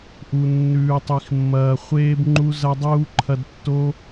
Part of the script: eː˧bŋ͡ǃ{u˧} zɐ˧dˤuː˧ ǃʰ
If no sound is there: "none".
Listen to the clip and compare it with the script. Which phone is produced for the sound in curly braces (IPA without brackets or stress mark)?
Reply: u˧